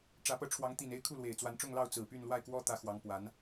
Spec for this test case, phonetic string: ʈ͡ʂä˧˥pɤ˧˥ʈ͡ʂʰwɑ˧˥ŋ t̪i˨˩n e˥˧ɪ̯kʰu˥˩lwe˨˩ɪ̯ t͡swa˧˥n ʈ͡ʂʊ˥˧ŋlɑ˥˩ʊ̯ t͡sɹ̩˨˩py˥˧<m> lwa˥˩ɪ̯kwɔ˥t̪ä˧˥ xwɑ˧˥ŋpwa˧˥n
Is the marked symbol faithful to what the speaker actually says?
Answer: no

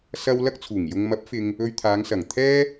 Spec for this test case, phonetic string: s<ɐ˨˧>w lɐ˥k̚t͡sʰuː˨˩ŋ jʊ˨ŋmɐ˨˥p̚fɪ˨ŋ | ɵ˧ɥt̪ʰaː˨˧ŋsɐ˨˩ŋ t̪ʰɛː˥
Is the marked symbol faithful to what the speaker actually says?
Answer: no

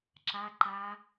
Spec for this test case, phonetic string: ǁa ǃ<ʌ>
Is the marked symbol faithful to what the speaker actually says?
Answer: no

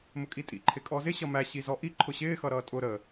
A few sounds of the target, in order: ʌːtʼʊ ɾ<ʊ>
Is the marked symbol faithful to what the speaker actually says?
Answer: no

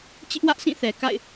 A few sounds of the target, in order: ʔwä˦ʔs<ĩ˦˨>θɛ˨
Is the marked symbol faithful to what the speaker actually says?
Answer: yes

